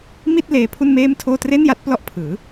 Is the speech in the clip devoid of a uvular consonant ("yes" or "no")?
yes